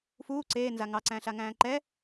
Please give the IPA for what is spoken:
f uː ǀ eː n z a ŋ ɑ ǀ æ̃ː ɬ a ŋ æ̃ː ǃ ɛ

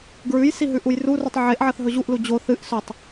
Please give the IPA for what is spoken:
ɡ ɹ ʉ j s i ɦ ʉ ʔ u j r u r ʉ tˤ ʕ e ʔ ʕ ɐ θ ɦ ɵ ʑ u ʔ l u d͡ʑ o θ ɨ ʔ s ɵ tˤ

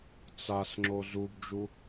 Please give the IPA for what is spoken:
t͡s a s ŋ͡ǁ o z u b d͡ʒ u

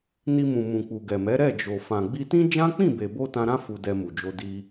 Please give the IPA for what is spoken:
n i˧ m ũ˨ m ũ˨ k͡p u˨ ɡ ɛ˨ m ɛ˨˦ ɾ ɛ˦˨ d͡ʒ o˨ f ã˨ ɡ͡b i˧ t ĩ˦ d͡ʒ ã˦ k͡p ĩ˦˨ b e˨ b o˧ t ã˧ ɾ ã˦ f u˧ d ɛ˧ m u˨ d͡ʒ o˧ d i˧

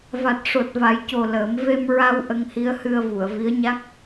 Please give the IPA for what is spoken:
v a˨˩ t̚ ʂ o˨˩ t̚ v a˨˩˦ j c o˨˩ l əː˨˩˦ m v e˧ m ɹ a˧ w ʔ ə˧ ŋ h i˧˥ ə̯ h ɨ˧ ə̯ v u˨˩˨ ə̯ v i˧˥ ə̯ ɲ a˦˥ k̚

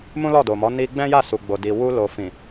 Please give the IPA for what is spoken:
m ũ˦ l ɔ˦˨ d o˨ m ɔ˨˦ n i˧ ɡ͡b ɛ̃˦ j a˦˨ s u˨ ɡ͡b o˨ d i˨ w u˧ l o˨ f ĩ˨

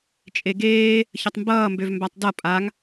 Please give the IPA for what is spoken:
t͡ʃʼ e ɡ eː | ç ʌ tˤ m b ʌː m b ø v m b a tˤ d ʌ pʼ a ŋ

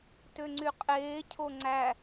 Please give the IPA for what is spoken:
t ø ŋ͡ǀ y qʼ eː cʰ o ŋ͡ǀ æ

